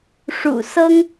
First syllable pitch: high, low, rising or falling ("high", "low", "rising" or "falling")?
low